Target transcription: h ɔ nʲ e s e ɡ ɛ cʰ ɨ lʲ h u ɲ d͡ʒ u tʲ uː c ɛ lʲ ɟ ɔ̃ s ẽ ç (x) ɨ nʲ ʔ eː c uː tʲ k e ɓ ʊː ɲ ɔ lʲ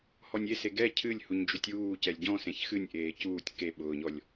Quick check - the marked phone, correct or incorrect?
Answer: correct